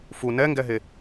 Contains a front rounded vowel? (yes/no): no